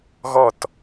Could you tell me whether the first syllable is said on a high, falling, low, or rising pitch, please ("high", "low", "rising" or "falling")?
falling